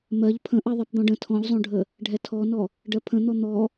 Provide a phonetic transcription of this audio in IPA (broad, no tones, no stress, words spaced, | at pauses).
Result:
mɜʎ pʰə̃ ʔɜðˤɛpd̪ɔ̃ɖə̃ tʰɔ̃ʎzˤõɖʱə | ɖʱɛtʰɔnɔ | ɖɜpʰə̃n̪ɔ n̪ɔ